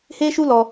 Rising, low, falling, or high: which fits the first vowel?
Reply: high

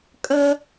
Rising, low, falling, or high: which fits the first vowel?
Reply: high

